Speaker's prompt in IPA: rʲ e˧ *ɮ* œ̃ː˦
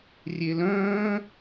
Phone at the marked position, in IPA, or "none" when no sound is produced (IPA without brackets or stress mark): l